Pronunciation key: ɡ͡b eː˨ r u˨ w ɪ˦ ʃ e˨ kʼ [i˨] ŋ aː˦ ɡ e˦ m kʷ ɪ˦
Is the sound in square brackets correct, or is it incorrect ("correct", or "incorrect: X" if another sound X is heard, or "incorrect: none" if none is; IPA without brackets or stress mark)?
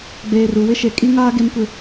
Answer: incorrect: i˦